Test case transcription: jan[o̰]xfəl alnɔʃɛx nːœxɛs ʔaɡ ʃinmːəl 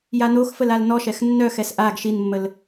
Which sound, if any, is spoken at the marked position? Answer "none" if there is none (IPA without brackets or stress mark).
o